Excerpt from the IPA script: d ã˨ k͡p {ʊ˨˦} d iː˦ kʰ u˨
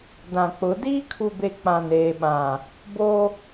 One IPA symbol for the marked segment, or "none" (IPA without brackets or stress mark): ʊ˨˦